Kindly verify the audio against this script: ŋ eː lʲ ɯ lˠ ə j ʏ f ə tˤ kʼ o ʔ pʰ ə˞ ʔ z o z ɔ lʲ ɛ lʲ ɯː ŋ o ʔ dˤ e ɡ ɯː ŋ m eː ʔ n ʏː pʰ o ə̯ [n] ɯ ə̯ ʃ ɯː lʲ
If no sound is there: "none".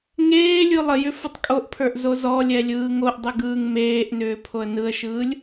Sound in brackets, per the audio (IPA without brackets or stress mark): n